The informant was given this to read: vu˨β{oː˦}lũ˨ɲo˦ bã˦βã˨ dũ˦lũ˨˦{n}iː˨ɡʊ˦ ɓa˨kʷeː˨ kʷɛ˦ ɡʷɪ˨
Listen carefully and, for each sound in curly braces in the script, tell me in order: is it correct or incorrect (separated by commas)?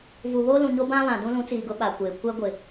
correct, incorrect